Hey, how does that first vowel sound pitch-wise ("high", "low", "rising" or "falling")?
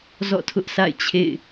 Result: falling